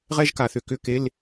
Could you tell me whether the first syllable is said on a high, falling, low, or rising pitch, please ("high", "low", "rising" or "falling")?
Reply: high